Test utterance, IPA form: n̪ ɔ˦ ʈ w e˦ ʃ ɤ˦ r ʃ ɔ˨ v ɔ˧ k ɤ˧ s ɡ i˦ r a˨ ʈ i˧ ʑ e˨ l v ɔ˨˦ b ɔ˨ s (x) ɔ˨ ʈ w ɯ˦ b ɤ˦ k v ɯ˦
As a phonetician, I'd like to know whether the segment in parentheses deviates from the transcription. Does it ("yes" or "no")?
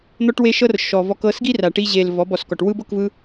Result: yes